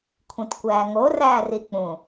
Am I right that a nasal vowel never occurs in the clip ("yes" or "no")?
no